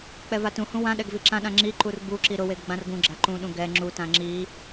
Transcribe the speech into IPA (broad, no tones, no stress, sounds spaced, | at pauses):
k͡p ɛ v a t ũ h ũ w ã ɗ ɛ ɡ v i ǁ ã ɗ ã ŋ͡ǁ i ǃ u r b u ǁ i ɾ ʊ w e ɡ ɡ͡b ã r ɡ ũ ɡ͡ǁ a ǃ ũ ɗ ũ ɡ ɛ ŋ͡ǁ u t ã ŋ͡ǁ i